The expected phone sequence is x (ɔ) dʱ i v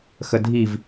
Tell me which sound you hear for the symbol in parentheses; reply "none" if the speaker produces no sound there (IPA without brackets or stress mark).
ə